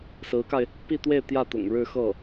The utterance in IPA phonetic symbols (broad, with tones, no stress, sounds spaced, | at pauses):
s ɹ̩˧˥ k a˧ ɪ̯ | p i˥˧ t̪ w e˥˧ ɪ̯ t̪ j ä˥˩ t̪ ʊ̰˨˩ ŋ ɻ ɻ̩˥˧ x ɤ˥˩